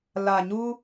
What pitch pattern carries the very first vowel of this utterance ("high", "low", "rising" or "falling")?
low